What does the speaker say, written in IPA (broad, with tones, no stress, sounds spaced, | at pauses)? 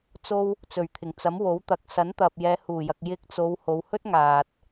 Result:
t͡s o˧ w | t͡s ɵ˨˩ ɥ t̪ʰ ɪ˨˩ ŋ t͡s ɐ˨˥ m w o˨˥ w t̪ ɐ˨˥ k̚ s ɐ˨˥ n t̪ ɐ˨ p̚ j ɛː˨˧ h uː˨˩ j ɐ˨ k̚ j ɪ˧ k̚ t͡s o˨˧ w h o˨˧ w h ɵ˥ t̚ ŋ aː˨ t̚